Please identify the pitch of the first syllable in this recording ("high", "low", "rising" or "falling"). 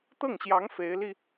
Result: falling